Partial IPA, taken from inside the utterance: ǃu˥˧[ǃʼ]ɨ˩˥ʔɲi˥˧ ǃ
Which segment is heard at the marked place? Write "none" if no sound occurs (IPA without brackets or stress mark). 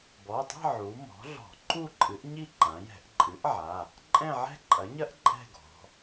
ǃʼ